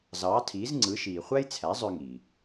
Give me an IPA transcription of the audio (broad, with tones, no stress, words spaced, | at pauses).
zɑː˩˥tʰiː˩˥zŋ͡ǀɯ˩˥ʃiː˩ χʷæ˥jt͡sʰæ˩˥zˤø˧ ŋi˩